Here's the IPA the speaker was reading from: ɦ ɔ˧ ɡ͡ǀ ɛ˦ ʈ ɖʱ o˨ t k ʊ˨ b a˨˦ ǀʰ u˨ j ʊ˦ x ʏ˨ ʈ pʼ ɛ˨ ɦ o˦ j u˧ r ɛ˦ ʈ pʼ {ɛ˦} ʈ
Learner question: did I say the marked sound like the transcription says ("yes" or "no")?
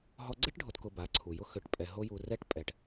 no